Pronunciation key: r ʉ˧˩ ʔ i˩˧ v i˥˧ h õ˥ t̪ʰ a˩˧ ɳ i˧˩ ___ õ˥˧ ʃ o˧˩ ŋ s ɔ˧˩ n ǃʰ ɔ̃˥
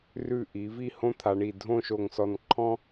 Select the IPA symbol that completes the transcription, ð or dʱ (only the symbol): dʱ